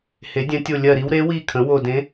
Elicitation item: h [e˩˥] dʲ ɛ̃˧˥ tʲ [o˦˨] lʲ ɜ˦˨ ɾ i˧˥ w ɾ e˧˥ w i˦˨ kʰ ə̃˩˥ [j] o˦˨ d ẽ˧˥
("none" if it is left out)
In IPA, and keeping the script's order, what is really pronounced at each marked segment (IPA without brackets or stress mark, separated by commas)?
e˩˥, o˦˨, w